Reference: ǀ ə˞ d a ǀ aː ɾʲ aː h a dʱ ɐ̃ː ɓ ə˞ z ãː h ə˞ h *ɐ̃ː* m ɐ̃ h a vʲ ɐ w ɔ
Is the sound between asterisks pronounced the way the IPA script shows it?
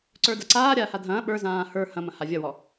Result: no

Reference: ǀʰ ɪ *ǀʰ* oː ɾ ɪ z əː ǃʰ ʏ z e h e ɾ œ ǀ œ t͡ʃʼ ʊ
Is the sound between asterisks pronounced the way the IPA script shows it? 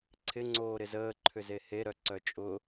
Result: no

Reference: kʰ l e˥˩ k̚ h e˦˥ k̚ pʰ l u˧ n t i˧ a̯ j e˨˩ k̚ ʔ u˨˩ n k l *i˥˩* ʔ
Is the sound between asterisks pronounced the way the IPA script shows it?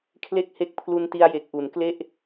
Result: no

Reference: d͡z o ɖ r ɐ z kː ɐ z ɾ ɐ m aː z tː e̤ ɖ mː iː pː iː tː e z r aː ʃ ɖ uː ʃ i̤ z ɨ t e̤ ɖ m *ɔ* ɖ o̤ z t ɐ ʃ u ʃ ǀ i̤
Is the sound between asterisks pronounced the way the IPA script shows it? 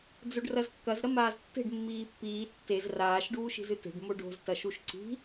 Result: no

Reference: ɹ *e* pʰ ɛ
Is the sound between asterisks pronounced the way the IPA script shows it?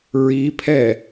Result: no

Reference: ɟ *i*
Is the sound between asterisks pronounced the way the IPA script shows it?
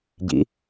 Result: no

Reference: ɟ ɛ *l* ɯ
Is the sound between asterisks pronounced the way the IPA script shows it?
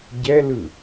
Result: yes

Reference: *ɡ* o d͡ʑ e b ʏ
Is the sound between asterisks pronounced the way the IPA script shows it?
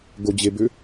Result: yes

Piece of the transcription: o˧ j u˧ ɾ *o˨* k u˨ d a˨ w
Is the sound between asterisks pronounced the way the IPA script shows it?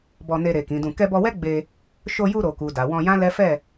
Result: yes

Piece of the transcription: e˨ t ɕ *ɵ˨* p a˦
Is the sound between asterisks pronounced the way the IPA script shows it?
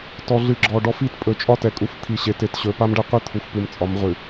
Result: yes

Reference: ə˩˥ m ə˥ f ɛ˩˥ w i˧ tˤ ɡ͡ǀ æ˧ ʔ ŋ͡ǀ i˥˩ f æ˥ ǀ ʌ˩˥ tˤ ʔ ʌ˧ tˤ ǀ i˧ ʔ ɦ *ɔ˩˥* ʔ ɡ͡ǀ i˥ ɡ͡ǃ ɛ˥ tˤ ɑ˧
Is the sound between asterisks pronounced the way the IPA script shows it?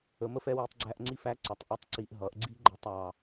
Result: no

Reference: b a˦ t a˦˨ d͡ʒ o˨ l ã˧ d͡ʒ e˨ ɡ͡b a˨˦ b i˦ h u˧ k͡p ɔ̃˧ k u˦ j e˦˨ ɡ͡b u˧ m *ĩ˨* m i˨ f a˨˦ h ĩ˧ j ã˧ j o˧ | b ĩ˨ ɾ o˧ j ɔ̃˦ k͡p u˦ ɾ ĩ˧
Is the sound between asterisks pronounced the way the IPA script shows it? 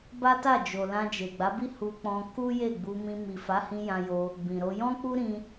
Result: no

